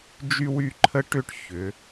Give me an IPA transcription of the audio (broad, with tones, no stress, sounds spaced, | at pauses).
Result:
d͡ʒ y˥ w y˥˧ ǃʰ ə˥ ʈ ʏ˥˧ ʈ ç ʏ˩˧